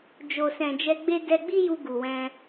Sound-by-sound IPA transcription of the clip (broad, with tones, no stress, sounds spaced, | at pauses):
d͡ʒ o˨ s ɛ̃˨ d͡ʒ ɛ˧ ɡ͡b e˦ d ɛ˧ ɡ͡b i˦ j u˧ ɡ u˨ w ɛ̃˧